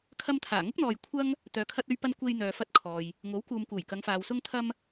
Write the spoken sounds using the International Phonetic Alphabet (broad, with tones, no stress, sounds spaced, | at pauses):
kʰ ɐ˧ m t̪ʰ aː˨˩ ŋ ʊ˥ k̚ n̪ ɔː˨ j kʷʰ ɐ˥ ŋ | t̪ œː˨ kʰ ɐ˧ t̚ ɵ˧ ɥ p ɐ˧ n kʷ e˧ j n̪ œː˨ f ɐ˧ t̚ kʰ ɔː˨ j | ŋ o˨˥ w k uː˨ m k uː˨˩ j k ɐ˨˧ ŋ f aː˨ w s ʊ˧ ŋ t̪ʰ ɐ˧ m